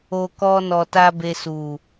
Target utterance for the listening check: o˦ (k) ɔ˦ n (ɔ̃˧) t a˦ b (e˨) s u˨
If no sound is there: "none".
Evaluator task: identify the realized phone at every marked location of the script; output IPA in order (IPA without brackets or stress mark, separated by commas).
k, ɔ˧, e˧